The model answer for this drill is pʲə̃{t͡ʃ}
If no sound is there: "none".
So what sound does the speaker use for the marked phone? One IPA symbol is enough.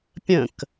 k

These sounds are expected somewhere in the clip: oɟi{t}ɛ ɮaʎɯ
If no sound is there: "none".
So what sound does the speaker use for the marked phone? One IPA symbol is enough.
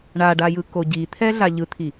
t̪ʰ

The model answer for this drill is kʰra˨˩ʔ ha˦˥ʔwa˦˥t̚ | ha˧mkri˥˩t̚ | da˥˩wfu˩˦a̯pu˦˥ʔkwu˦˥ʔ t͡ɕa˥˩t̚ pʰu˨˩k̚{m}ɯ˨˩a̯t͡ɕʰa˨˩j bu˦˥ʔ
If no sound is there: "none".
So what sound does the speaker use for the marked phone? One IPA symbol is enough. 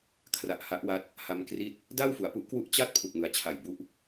m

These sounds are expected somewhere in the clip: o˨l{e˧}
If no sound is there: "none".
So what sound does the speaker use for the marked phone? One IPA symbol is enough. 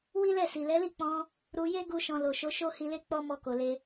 e˧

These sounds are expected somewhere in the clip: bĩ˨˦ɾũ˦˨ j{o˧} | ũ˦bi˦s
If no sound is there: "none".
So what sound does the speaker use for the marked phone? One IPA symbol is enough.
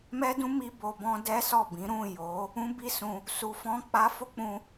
o˨˦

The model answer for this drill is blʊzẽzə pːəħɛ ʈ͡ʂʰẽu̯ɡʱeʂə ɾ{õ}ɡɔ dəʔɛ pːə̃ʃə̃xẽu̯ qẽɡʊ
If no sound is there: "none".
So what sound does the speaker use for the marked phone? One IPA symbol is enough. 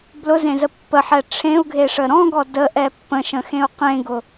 ɔ̃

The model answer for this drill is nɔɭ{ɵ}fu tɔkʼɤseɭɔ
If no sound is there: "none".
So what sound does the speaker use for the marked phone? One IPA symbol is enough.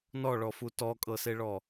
ɔ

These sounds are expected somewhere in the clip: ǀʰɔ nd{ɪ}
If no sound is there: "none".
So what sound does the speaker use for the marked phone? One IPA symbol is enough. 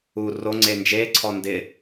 ɪ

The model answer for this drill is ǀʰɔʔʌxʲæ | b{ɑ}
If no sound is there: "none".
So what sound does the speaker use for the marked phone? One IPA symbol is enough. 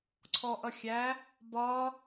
ɒ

